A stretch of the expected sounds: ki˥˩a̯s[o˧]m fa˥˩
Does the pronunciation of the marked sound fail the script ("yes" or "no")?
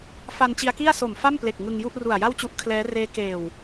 yes